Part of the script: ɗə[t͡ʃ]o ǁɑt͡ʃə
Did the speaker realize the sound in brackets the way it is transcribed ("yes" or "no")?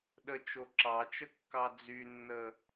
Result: yes